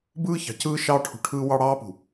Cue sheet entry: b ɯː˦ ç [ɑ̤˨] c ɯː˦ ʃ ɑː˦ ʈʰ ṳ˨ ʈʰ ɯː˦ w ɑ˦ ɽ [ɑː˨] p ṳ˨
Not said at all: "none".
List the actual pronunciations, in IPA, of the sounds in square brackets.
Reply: ɑ̤˨, ɑː˦

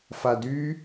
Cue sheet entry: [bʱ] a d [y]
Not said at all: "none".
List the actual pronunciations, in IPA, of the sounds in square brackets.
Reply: f, y

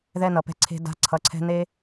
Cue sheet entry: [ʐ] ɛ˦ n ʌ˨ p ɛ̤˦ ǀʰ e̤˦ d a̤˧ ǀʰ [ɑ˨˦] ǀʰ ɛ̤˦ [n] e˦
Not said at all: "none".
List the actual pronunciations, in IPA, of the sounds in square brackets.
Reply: ð, ʌ˨˦, n

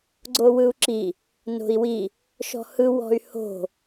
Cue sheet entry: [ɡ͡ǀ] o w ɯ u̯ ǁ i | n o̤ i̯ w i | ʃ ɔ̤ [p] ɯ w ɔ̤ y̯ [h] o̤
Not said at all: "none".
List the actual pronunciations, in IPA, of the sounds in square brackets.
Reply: ɡ͡ǀ, h, h

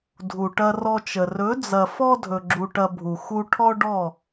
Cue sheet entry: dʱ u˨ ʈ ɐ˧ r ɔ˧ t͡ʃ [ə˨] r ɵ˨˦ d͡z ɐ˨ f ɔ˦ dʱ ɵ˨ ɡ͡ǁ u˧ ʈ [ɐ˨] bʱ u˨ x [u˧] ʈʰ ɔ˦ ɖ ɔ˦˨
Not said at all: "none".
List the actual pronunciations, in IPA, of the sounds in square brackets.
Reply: ə˨, ɐ˧, u˧

